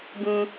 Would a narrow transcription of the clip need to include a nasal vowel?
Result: yes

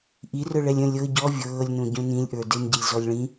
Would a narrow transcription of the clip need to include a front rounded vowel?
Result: yes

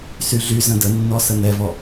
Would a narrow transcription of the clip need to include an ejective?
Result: no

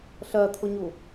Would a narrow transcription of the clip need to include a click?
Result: no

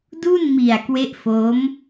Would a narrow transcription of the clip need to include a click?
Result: no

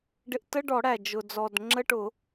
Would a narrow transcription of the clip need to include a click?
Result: yes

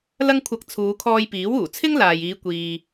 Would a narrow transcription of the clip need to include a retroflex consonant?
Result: no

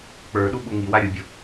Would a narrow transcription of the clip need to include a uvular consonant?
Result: no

